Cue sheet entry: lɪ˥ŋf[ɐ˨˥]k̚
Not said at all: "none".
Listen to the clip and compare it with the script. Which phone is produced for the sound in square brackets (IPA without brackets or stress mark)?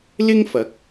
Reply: ɐ˨˥